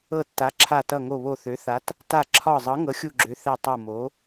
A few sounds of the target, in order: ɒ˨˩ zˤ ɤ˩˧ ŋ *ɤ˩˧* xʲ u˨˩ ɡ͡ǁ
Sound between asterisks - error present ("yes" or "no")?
no